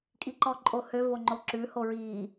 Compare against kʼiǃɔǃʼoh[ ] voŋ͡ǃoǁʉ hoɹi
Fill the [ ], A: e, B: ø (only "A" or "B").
B